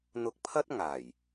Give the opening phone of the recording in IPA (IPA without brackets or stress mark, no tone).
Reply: n̪